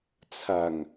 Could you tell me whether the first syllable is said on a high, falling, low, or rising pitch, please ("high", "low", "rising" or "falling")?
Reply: low